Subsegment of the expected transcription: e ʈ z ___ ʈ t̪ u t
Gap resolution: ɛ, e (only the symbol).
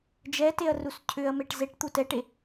e